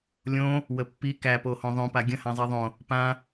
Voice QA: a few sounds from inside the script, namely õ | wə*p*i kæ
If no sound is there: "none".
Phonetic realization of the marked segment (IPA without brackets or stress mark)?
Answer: pː